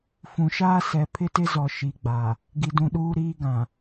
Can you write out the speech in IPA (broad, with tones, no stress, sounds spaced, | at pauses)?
f ũ˨ ʃ aː˦ s ɛ˨ pʰ ɪ˦ t ɪ˦ z ɔ˨ ʃ i˨ ɡ͡b a˨ | ɡ i˨ d ũ˨ ɗ uː˦ ɾ iː˦ ɡ ã˨